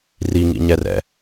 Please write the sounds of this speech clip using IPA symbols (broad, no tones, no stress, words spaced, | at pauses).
riŋḭɲɛrɛ̰